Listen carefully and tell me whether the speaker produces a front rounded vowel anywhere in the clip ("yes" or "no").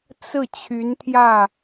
yes